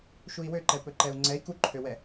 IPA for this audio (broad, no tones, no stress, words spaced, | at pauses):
ʃui̯wøǃɛpɵ ǃɛu̯ŋ͡ǀɛi̯ kuǃʰøwɛ